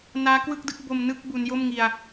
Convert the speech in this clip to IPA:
naː˦˥kwɯ˥˩k̚dɯ˦˥k̚ bo˧mnɯ˥˩k̚ bu˦˥n jo˥˩mŋi˧a̯

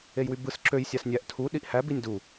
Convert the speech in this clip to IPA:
ejwybɯs ǁøj sʲɑsnʲæʔ tʰu ɗiʔhæ binʲdu

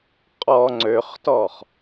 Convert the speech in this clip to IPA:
qʼɔ ŋ͡ǀøχtɔχ

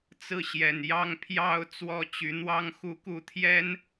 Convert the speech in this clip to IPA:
t͡sɹ̩˥˨ɕjɛ˨˩njɑ˦ŋ pʰjɑ˥˨ʊ̯ t͡swɔ˥˨ t͡ɕy˨˦n̪wɑ˦ŋxu˥˨ku˥˨ t̪ʰjɛ˦n

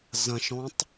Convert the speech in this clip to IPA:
zɐ̃ʃɔ̃tˤ

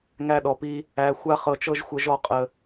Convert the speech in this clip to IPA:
ŋæ˦ɗɔ˧pi˦ | æ˧ xʷa˦χɤ˧t͡ʃɤ˦ʒ xʷə˧ʒɔ˦˨ qʼə˧

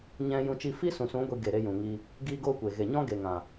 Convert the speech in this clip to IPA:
ɲɛ̃˧ jũ˧ t͡ʃi˧fiː˦sũ˨sũ˨˦ ɡʷi˧ ɡe˨ɾe˧ jũ˨ŋi˧ | ɡiː˦ɡoː˦kʷe˨ ɣe˨ɲɔ̃˦ ɡe˨ŋã˨

